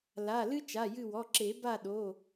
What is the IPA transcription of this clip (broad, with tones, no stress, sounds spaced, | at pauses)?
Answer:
l a˩˧˩ l ɨ˥ t͡ʃ a˩˧˩ j ɨ˦˨ w ɔ˩˧˩ ǁ e˨˩˦ b a˦˨ ɗ o˩˧˩